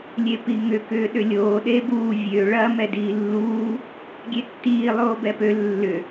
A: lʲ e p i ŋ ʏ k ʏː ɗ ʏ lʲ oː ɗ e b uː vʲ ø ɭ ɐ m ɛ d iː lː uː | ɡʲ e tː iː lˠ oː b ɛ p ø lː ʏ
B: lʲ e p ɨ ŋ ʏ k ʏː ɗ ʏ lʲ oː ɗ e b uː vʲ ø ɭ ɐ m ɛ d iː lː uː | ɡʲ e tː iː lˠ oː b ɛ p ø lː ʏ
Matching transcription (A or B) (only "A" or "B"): A